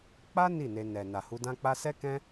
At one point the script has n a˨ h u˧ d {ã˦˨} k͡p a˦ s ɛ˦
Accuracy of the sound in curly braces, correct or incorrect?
incorrect